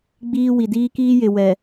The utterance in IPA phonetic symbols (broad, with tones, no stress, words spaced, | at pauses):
ɡ͡biː˦ wi˨ diː˦kiː˦jɪ˨ wɛ˨